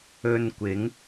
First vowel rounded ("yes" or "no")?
yes